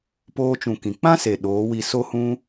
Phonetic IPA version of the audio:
p oː˧ t͡ʃ ũ˨ k ĩ˨ k͡p ã˦ s e˨ ɗ oː˨˦ w i˧ s o˧ h ũ˧

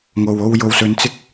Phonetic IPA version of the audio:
ŋ o˨ w o˧ w j o˧ w s ɵ˧ n t͡s ɪ˥ k̚

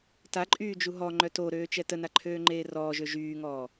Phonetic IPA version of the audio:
t a ǃʼ yː d͡ʒ u ɦ ɔ ŋ͡ǃ œ t o ɾ øː t͡ʃ ɛ t ə n a ǃʰ øː ŋ͡ǃ eː r ɔː ʒ ø ʒ yː ŋ ɔː

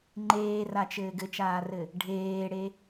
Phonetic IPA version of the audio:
ŋ͡ǃ eː r a t͡ʃ ɘː ɡ ɘ t͡ʃ aː r ɘ | ɖʱ eː ɽ e

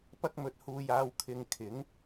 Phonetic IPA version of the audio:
p ɐ˥ k̚ m ɵ˧ t̚ h uː˧ j aː˧ w kʰ ɪ˧ ŋ kʰ ɪ˨˥ ŋ

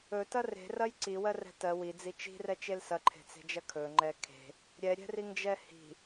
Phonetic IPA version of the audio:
ɵ t ɐ r e̤ r ɐ j ǀ i w ɜ r ɛ̤ t ɜ w i d͡z i t͡ʃ i̤ r ɛ t͡ʃ e l s ɐ ǃʰ e̤ t͡s e̤ d͡ʒ ɐ kʰ ɵ ŋ͡ǃ ɛ kʰ e̤ | ɾʲ ɛ ɾʲ ɛ̤ r i ŋ d͡ʒ ɛ h i̤

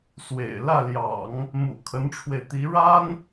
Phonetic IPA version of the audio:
s w ḛ˨˩ ɪ̯ l ä˥˩ l j ɑ̰˨˩˦ ŋ | m ṵ˨˩ kʰ ə˧˥ n ʈ͡ʂʰ w e˧ ɪ̯ t̪ i˧˥ ɻ a˥ n

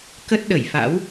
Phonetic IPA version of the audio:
k ə˦˥ t̚ ɗ ə˧˩ j f a̰˧˥ w

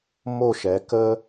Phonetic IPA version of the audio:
m o˧˩ ʃ ɛ˩˧ k ə˧

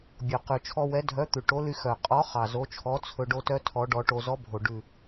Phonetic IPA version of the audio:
bʲ o˨˩ q ʉ˨˩ t͡ʃʰ ɔ˧ w ɛ˨˥ dʱ œ˨˥ t̪ ʉ˨˩ ʈ o˨˥ l y˧ x œ˨˩ qʼ ɔ˨˥ χ ɑ˨˩ z o˨˥ t͡ʃʰ ɔ˨˥ t͡sʰ ɵ˧ ɖ o˧ t œ˧ tʰ ɔ˨˥ ɖ ɔ˧ ʈ o˧ z ɔ˨˥ bʱ o˨˩ ɖ ʉ˨˩

